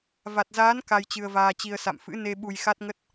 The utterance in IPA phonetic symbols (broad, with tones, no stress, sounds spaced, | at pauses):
v a˨˩ t̚ z aː˨˦ n k a˧ j t͡ɕ ɨ˧ ə̯ v aː˧ t͡ɕ i˧ ə̯ s a̰˧˨ m f ɨ̰˧˥ n e˧ ɓ u˧ j x a˦˥ t̚ ŋ ə˦˥ t̚